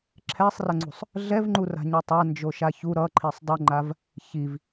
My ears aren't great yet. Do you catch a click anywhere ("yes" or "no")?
yes